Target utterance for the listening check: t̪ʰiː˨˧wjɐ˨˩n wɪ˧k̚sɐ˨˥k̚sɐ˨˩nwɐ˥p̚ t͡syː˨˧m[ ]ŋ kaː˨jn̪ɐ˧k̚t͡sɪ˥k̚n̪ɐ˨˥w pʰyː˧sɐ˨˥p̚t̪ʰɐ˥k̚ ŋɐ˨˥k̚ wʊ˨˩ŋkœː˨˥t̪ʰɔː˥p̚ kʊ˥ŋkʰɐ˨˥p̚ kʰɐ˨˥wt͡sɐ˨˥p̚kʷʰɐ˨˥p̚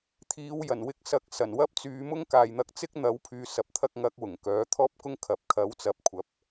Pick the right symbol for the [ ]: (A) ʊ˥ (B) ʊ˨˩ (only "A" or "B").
A